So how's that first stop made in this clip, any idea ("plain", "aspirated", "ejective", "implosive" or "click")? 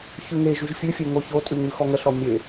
ejective